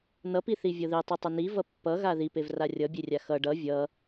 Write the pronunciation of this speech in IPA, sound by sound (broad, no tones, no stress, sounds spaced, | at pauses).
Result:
n ʌ p i θ i vʲ ɤ ð i tˤ u tˤ ʌ n i v ʌ pː ʌ ɣ a ð i p e v r a rʲ ʌ bʲ e rʲ a x ʌ ɖ ʌ vʲ ʌ